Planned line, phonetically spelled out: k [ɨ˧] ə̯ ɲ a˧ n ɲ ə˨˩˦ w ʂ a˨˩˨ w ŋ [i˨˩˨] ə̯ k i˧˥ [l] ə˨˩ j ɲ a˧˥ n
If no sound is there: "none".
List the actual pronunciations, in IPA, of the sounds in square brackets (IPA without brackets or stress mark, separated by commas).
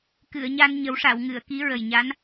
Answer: ɨ˨˩˨, ɨ˨˩˨, ɹ